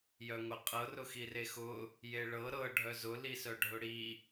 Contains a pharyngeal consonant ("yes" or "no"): no